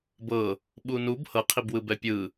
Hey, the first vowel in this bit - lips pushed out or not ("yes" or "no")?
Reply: no